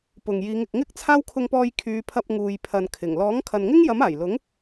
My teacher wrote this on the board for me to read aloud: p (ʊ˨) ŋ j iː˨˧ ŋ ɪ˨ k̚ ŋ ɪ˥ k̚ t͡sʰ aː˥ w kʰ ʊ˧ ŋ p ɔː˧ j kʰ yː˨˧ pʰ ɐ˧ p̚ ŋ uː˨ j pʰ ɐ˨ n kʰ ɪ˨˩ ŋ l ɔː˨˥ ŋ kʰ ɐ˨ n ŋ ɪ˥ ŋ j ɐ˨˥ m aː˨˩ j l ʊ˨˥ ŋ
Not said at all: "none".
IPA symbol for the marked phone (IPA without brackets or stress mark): ʊ˨